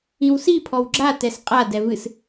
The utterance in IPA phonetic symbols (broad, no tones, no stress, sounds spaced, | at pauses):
ĩ w s i pʰ ɔ w ɡ͡ǁ a t ɛ s qʼ a d ɛ v ɨ s